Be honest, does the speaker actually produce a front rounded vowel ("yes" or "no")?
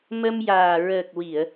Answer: no